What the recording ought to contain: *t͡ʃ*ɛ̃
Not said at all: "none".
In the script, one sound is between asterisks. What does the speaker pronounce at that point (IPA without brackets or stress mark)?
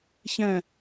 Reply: ç